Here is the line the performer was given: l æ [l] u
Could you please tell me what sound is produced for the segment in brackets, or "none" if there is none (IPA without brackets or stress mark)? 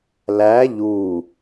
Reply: ʎ